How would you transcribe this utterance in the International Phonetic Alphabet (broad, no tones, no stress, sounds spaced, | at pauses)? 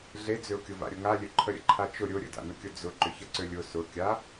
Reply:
ɮ e d͡z ʏ ʊ̯ kʲ ʊ v a̰ ɾʲ ʊ ŋ a lʲ ø ǃʰ ə ɾʲ ə̰ ǃʰ a t͡ʃ ʊ ɾʲ ʊ ɾʲ ə̰ d a̰ n ʊ kʲ ʊ d͡z ʊ ǃ ʏ ç ə ǀ ø lʲ ʊ s ʊ kʲ a